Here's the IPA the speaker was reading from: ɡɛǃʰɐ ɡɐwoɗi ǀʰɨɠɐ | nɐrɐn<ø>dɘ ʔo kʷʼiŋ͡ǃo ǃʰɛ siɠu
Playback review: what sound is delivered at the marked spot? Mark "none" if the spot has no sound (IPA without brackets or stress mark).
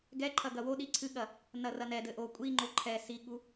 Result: ɛ